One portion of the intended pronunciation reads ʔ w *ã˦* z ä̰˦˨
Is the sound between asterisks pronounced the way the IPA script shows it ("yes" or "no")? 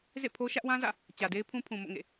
yes